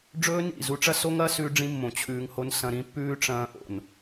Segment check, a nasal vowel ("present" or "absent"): present